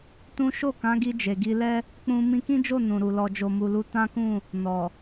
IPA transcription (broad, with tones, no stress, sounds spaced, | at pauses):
t ũ˦ ʃ o˦˨ k ã˨˦ ɡ i˧ d͡ʒ e˨ ɡ i˧ l ɛ˦ | k͡p ũ˧ m ĩ˧ k ĩ˦ d͡ʒ o˦˨ n ũ˨ ɾ u˨ l ɔ˨ d͡ʒ o˨ m u˨ l u˨˦ t ã˦ k ũ˦˨ | n ɔ˨